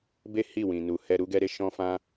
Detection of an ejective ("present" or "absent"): absent